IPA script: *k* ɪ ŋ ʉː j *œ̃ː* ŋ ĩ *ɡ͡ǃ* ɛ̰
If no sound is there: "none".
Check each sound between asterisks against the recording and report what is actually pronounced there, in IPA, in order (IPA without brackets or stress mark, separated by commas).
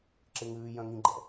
ǁ, œ̃, ɡ͡ǃ